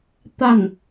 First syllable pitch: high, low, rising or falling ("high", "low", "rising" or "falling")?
falling